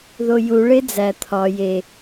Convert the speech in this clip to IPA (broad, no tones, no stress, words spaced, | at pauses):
ðoju ɭed͡zæ t̪ʰɒ je